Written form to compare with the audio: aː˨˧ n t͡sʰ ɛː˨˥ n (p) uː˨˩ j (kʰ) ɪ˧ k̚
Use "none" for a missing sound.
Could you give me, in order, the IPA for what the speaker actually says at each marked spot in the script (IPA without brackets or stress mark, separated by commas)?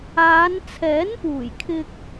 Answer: p, kʰ